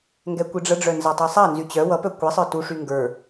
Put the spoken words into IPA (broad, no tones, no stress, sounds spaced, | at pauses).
ŋ ɡ ɛ kʷ i ɖ͡ʐ ə ɖ͡ʐ œ n z a tˤ i sˤ a n z y t͡ɕ œ w ʌ p œ kʷ i sˤ ə˞ t u ʂ y ŋ ɡ ə˞